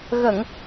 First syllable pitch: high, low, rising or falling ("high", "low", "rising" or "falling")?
low